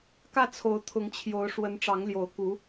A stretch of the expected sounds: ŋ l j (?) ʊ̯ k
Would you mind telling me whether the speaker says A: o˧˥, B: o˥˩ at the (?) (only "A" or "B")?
A